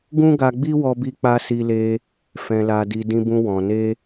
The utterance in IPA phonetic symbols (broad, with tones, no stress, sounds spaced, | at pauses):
ɡ ũ˦ ɡ a˧ ɡ͡b i˦ w ɔ˧ b i˧ k͡p a˧ s i˧ l e˧ | f ɛ̃˨ l a˨ d i˨ d ĩ˧ b ũ˧ w ɔ̃˨ n e˧